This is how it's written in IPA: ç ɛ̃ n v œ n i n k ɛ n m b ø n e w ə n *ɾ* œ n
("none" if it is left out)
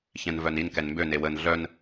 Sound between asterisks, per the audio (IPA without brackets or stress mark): ɮ